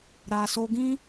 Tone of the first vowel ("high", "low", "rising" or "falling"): low